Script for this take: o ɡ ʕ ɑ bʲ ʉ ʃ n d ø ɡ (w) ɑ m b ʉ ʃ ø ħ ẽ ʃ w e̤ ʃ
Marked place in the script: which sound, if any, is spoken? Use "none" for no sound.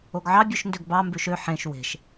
b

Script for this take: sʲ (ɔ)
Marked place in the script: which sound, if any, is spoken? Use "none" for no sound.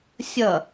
ʌ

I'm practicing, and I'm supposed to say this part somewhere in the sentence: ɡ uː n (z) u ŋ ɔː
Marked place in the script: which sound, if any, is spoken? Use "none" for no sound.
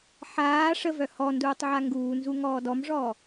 z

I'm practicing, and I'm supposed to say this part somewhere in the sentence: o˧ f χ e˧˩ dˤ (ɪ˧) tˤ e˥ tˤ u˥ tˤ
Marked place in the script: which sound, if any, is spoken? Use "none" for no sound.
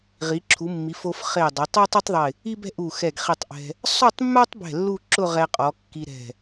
ɪ˩˧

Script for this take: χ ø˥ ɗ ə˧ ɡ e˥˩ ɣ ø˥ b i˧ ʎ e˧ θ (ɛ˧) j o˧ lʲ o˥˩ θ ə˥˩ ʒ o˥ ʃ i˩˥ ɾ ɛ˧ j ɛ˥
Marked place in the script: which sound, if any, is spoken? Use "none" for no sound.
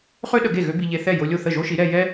ɛ˥˩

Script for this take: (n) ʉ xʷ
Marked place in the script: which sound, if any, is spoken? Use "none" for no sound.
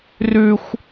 r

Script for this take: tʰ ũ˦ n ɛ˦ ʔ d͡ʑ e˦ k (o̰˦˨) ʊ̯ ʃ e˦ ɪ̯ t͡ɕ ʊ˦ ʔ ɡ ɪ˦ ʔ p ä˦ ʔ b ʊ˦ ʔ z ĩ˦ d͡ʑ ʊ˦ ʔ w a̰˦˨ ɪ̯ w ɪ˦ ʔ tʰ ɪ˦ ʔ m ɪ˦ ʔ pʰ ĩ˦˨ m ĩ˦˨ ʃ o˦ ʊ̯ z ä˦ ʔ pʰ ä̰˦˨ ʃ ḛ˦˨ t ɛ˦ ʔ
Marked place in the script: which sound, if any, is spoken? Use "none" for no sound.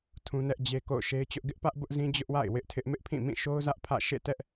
o̰˦˨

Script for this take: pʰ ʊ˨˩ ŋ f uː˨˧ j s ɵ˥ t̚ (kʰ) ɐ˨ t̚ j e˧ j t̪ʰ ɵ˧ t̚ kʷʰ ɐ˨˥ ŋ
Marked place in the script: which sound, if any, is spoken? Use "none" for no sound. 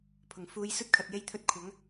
kʰ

